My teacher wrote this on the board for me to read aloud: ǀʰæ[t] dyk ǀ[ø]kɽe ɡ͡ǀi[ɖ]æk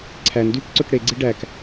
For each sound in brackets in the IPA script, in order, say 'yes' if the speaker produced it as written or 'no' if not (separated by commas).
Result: no, yes, yes